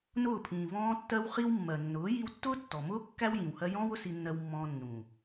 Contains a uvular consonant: yes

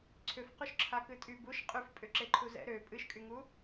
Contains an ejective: yes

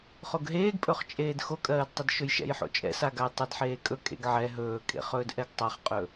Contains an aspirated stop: no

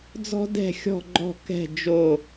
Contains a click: yes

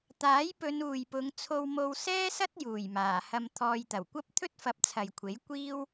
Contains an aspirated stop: yes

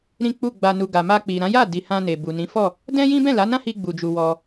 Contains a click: no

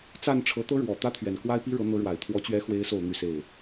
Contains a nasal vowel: no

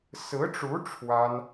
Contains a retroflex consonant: yes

